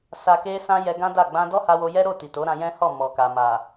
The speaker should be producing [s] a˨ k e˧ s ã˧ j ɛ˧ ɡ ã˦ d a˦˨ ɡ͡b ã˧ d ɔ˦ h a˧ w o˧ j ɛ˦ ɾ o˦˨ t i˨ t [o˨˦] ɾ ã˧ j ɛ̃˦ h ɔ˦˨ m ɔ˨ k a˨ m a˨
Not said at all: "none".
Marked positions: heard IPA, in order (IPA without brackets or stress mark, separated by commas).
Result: s, o˨˦